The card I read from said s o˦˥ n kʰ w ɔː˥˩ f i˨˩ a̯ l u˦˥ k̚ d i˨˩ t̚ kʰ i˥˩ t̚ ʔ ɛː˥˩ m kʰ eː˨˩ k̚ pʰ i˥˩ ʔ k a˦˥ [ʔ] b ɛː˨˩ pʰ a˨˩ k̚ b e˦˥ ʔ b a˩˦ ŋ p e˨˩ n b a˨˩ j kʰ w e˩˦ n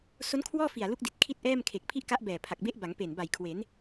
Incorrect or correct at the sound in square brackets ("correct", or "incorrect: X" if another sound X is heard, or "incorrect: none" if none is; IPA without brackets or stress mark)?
correct